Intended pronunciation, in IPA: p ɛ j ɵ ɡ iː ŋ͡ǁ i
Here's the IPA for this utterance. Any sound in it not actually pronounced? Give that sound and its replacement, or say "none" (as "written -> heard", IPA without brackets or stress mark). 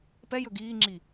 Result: none